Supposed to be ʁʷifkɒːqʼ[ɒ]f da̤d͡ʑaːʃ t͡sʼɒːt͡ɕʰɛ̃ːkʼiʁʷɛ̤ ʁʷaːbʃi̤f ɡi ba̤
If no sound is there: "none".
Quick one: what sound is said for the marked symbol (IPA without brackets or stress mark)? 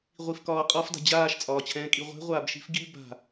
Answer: ɒ